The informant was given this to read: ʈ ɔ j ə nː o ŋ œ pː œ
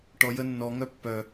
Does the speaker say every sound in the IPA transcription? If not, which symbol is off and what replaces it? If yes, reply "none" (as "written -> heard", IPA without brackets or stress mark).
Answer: o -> ɔ